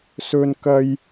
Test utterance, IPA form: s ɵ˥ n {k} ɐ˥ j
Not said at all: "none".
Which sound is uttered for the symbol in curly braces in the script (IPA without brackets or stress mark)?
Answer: k